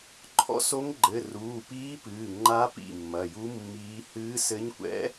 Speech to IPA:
ǃʰ ɔ̰˧˥ s o˧˥ ŋ ɡ͡ǃ ɘ˩˧˩ r uː˩˧˩ p iː˧˥ p ɨː˩˧˩ ŋ͡ǃ a˧˥ p ḭ˩˧˩ mː ɐ˩˧˩ j u˧˥ mː iː˧˥ h ɨː˧˥ s ɘ˧˥ ɲ kʷ ɛ̰˧˥

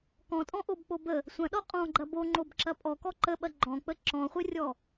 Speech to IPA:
k ɔ̃ tʼ ɔ̃ ʔ o b k͡p o b ə | sʷ ɐ̃ ɗ ɔ qʼ ɔ̃ ɡ͡ǃ ɐ b o ŋ͡ǃ o b ǁ ɐ pʼ ɔ k ɔ ǃ ə ɓ ɐ ɡ͡ǃ ɔ̃ k͡p ə ǁ ɔ̃ χʷ ə rʲ ɔ

